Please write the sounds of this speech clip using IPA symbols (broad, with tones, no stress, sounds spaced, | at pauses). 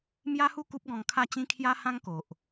m j a˦ h u˥˧ k u˦ p̚ ɡ ɔ̃˧ ŋ kʰ a˥˧ t͡ɕ ĩ˦ kʰ j a˦ h ã˦ ŋ k o˨ ʔ